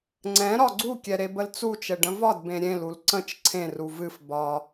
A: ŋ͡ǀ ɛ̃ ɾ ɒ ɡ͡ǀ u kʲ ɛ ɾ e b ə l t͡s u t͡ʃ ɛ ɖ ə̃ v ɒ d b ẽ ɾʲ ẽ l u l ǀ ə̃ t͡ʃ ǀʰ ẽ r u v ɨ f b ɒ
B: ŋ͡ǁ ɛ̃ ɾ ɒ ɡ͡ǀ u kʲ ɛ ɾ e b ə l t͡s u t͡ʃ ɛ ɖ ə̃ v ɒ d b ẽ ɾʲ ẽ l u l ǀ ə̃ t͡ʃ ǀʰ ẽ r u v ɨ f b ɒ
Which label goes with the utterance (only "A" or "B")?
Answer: A